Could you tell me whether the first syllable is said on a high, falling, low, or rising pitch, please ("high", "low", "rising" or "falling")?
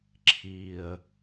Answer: low